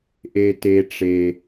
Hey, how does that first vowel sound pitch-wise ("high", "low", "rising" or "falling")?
high